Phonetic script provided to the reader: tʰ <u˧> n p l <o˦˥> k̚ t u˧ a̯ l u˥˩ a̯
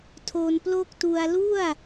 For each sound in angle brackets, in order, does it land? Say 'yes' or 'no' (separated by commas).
no, no